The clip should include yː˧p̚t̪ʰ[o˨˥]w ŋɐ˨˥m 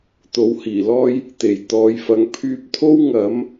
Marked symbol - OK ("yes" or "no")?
no